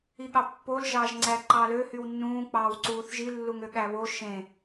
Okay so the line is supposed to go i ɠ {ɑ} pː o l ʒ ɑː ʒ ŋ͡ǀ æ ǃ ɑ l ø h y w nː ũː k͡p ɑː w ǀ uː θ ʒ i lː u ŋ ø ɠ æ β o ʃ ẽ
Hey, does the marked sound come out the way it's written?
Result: yes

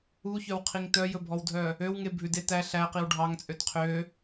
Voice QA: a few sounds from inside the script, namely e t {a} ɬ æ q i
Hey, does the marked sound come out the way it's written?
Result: no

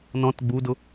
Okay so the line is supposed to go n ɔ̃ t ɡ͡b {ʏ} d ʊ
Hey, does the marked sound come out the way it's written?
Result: no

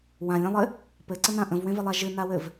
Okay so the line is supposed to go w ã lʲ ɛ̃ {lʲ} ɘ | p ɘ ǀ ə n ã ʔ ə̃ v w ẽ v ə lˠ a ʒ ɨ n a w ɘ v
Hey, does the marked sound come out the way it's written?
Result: no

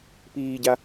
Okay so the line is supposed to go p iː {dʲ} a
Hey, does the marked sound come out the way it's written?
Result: no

